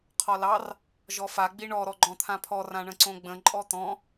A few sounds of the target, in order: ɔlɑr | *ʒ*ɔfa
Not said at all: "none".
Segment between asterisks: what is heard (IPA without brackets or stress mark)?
ʒ